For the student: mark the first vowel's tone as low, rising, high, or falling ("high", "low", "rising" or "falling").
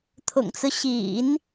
low